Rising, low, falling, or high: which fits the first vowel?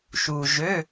low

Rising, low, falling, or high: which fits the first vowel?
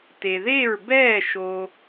low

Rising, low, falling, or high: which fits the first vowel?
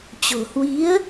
low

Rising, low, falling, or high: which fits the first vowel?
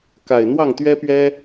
low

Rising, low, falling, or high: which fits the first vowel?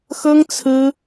high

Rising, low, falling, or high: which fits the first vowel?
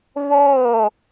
falling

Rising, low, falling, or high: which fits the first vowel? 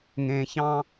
low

